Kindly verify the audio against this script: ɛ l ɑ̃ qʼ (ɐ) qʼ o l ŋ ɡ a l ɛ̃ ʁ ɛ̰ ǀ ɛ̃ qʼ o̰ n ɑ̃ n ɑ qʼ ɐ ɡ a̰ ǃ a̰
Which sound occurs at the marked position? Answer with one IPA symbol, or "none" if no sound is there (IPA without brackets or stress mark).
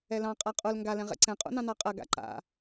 a